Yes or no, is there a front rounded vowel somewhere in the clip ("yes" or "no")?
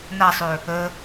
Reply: yes